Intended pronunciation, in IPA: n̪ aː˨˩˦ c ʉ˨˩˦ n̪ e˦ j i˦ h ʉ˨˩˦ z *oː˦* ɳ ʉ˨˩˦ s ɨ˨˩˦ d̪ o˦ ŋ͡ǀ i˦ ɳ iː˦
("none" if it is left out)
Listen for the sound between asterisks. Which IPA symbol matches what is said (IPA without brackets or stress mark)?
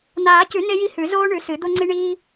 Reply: oː˦